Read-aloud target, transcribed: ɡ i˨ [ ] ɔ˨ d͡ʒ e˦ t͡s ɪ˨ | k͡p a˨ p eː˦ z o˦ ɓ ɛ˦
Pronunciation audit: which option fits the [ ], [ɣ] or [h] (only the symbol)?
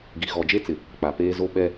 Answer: ɣ